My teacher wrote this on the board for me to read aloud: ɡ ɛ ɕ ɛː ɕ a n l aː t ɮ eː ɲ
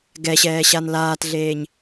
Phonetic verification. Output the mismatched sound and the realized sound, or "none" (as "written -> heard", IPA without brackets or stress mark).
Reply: none